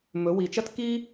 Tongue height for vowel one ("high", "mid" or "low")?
mid